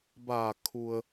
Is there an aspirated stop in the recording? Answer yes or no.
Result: yes